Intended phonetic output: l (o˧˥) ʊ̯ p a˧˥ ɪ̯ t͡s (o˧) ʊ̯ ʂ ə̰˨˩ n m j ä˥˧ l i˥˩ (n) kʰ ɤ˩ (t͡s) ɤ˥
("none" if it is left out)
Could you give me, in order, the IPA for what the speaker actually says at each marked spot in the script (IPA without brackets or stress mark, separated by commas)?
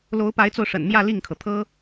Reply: o˧˥, o˧, ŋ, t̪ʰ